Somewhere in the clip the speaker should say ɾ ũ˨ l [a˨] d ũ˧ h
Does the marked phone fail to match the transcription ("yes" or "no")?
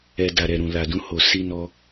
no